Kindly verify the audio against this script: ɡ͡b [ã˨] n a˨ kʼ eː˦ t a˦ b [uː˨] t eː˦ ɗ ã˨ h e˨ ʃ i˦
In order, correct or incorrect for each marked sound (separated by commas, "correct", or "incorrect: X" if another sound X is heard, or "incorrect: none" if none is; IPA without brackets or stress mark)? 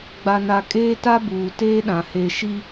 incorrect: a˨, correct